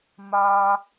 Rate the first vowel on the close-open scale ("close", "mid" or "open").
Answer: open